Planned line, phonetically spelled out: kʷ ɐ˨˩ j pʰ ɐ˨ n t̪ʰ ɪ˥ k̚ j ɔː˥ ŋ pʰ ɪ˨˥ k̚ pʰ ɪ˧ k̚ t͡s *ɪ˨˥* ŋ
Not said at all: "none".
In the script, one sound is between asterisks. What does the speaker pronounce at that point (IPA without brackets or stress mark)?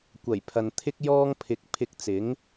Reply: ɪ˨˥